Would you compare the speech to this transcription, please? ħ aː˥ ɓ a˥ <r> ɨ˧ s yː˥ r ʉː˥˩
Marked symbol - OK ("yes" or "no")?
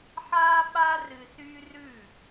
yes